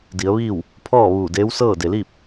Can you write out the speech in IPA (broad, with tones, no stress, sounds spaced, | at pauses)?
d i˩˧ ə̯ ʋ iː˥˨ w | pʰ ɔː˥˨ ʋ uː˧˩ d eː˧˥ w s ɤː˥˨ d e˩ l iː˥˨ p̚